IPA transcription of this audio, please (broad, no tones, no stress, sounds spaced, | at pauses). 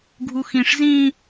ɡʱ u x ĩ ʂ z ĩ